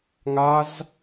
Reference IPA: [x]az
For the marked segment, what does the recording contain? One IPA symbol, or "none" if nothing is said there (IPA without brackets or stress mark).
ŋ